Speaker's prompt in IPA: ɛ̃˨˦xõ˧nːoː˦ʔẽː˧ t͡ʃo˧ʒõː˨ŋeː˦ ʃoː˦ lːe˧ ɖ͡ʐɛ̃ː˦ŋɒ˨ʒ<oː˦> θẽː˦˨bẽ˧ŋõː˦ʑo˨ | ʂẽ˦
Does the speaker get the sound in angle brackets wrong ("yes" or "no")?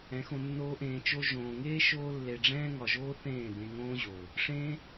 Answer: no